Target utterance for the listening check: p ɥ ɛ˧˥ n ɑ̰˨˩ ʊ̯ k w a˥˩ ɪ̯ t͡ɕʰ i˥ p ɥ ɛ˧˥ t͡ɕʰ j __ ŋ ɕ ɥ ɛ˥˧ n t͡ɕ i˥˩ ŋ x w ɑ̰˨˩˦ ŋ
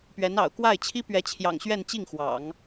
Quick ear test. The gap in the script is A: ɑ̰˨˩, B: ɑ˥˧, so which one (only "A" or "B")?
A